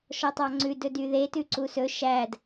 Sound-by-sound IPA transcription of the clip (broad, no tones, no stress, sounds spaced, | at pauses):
ʃ ɔ tˤ ɑ ŋ͡ǀ ʉ d ɵ d y ð e t ʉ ǀ u s ɵ ʃ æ d